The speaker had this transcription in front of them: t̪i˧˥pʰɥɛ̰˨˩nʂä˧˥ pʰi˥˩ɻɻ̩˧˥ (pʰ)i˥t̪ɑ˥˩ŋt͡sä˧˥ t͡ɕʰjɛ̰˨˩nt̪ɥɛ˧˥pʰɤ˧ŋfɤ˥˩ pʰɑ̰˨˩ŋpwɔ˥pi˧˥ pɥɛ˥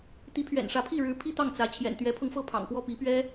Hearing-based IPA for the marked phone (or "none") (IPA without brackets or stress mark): pʰ